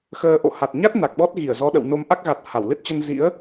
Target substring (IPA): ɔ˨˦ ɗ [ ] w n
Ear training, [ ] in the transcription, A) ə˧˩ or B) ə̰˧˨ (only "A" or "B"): B